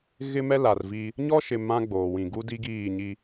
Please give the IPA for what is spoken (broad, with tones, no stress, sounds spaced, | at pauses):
ɣ ɪ˦ m ɛ˦ l a˨ r v iː˦ | ɲ ɔ˦ ʃ ɪ˨ m ã˦ ɡ͡b oː˨ w ĩ˨ ɡ u˦ d i˦ ɡ iː˦˨ ɲ i˦